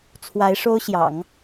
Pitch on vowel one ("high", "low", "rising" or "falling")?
rising